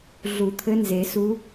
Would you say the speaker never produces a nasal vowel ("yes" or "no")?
yes